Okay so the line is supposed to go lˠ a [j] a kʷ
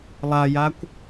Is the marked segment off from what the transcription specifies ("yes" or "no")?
no